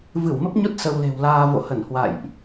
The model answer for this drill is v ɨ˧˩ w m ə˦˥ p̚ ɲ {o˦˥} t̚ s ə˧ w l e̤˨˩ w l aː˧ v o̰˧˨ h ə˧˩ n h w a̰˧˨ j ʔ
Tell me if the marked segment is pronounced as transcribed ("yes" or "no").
yes